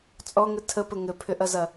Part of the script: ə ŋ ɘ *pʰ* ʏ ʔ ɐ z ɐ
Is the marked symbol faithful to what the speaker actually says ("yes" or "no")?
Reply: yes